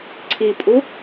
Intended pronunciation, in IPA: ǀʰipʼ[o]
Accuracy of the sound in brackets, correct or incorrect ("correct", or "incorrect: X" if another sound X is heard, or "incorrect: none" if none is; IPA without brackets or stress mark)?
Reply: incorrect: u